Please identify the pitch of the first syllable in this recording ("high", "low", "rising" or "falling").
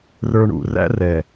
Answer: low